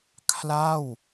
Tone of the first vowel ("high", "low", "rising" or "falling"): falling